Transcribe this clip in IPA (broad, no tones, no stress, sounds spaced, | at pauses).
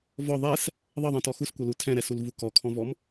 v ɔ ðˤ ɛ s | ðˤ ɤ ðˤ ɛ̃ t ɔ x u s kʷ ɤ l u tʰ ɛ̃ ɾ ɛ s u l v u k ɔ kʰ ɔ̃ v ɔ m